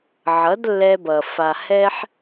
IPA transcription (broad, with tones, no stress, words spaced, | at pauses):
ʕʌ˨˦dlːɛ˧bʌ˨ fa˨ hɛ˦ħ